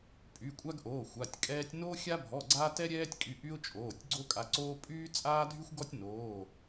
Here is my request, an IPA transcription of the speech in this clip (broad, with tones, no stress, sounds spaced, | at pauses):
pʼ y˩˧˩ kʷʼ a˦ ɡ ʔ oː˩˧˩ xʷ a˩˧˩ tʲ kʼ ɛː˦ tʲ n oː˦ xʲ a˦ bʱ ɔ˩˧˩ ɡ͡ǀ aː˦ t ɛ˦ ɾʲ ɛː˦ tʲ kʼ y˩˧˩ ʔ y˦ ʊ̯ t͡ʃʼ oː˩˧˩ tʲ ɡ͡ǀ o˦ kʼ a˩˧˩ ǀ oː˦ pʼ yː˦ t͡sʼ aː˦ dʱ y˦ xʷ ɡ ɔ˦ tʲ n oː˩˧˩